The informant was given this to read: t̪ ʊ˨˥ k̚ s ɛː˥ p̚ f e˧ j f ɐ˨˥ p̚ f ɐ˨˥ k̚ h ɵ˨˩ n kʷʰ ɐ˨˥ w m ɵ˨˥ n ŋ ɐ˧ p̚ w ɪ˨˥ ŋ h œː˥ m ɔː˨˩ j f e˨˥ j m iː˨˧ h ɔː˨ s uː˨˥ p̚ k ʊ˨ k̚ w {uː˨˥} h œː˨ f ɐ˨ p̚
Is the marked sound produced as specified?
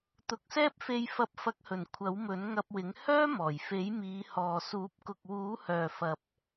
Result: yes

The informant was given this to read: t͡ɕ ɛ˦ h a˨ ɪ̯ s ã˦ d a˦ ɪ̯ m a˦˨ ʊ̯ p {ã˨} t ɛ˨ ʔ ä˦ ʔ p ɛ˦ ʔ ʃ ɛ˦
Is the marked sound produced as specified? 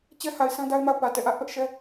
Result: no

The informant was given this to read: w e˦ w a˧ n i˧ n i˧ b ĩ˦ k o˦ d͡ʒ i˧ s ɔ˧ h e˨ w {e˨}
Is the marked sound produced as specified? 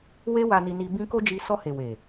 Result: yes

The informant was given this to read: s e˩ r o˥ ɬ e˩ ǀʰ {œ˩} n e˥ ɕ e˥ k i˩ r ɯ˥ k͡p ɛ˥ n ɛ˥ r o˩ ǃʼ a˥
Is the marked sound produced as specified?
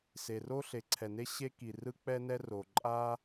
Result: no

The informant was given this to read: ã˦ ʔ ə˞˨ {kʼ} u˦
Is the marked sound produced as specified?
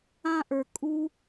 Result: yes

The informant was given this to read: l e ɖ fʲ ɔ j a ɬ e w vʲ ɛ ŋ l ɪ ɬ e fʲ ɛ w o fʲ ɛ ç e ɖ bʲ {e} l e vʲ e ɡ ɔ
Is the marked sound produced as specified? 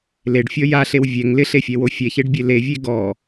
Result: yes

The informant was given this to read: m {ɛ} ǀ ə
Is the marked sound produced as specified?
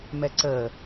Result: yes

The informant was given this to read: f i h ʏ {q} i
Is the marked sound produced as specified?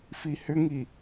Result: no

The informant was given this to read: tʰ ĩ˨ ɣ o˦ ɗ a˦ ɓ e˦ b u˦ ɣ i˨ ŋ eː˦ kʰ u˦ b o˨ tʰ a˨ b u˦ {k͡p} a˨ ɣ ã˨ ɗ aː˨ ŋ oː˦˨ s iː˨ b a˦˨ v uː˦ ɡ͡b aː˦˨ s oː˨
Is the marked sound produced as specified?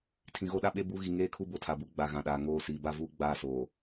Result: no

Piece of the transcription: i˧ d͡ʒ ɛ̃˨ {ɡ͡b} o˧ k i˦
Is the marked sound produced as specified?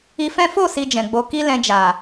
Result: yes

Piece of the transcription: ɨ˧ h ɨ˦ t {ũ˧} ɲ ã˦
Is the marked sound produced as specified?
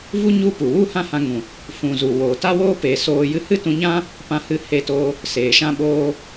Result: yes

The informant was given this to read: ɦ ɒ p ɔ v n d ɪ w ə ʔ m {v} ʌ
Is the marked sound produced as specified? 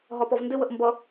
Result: no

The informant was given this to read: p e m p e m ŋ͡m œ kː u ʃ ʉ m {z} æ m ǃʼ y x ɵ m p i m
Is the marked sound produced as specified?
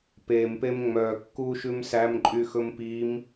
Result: no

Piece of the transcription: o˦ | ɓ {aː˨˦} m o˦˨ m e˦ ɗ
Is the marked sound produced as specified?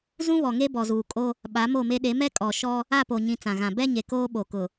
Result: no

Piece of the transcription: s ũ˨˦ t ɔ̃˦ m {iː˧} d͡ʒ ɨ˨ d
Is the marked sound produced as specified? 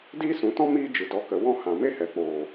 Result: no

